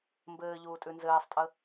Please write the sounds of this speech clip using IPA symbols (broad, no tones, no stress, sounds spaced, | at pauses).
m b ɘː ʎ uː tʼ ʉ n z ɘː sˤ tʼ ə